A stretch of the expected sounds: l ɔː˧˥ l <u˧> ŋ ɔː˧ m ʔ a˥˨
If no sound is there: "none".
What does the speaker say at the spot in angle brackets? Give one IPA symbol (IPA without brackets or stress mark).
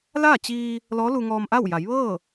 u˧